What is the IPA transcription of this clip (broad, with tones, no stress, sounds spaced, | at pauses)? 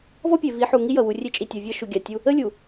v ɔ˦ pʲ e˨ v i˨˦ ħ u˨ ŋ i˦ j ʌ˨ w u˨ rʲ e˦ t͡ʃʼ i˨ tʲ ʌ˨ vʲ ʌ˦ ʃ u˨ ɡʲ a˨ tʲ u˦ | ə˦ lʲ u˨